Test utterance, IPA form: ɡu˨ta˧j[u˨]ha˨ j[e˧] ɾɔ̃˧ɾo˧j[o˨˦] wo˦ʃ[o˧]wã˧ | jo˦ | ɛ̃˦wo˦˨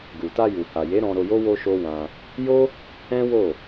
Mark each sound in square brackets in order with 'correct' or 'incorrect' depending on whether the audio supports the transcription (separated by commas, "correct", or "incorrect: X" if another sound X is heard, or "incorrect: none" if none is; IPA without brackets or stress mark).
correct, incorrect: e˨˦, incorrect: o˦, incorrect: o˦